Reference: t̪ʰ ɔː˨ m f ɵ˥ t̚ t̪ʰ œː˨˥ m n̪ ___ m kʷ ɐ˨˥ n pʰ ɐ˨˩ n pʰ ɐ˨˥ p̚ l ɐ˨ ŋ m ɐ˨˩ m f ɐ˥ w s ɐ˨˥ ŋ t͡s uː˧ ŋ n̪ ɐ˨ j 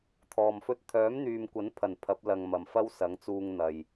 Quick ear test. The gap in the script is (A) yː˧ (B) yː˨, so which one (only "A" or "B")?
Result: B